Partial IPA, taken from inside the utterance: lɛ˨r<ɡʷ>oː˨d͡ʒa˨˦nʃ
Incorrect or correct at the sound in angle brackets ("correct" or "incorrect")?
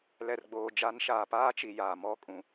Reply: incorrect